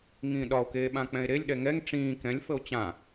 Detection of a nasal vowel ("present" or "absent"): present